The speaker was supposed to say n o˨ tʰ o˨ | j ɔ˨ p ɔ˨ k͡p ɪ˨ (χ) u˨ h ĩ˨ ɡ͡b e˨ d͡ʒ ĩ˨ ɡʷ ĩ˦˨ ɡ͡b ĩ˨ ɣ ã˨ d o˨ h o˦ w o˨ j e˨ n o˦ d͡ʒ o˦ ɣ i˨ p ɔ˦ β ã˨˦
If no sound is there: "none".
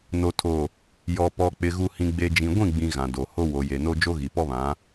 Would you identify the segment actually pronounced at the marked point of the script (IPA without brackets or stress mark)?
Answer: ɣ